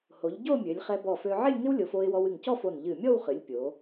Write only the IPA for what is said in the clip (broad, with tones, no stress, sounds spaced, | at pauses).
h o˩˧ ʎ ɟ o˥˧ mʲ ø˩˧ lʲ χ ɛ˧ b ɔ˧˩ f ø˧ ʕ ɪ˥˧ lʲ ŋ ɪ˥ w lʲ o˩˧ f o˧ ɪ̯ w ɔ˧ w ɨ˧˩ ŋ c ɔ˥˧ f o˧˩ n ʎ ɨ˧˩ mʲ ɔ˥˧ w χ ɨ˩˧ lʲ pʲ o˩˧